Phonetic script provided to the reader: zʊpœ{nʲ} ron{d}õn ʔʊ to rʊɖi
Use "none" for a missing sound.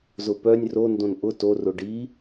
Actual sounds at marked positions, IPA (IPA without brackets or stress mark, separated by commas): nʲ, d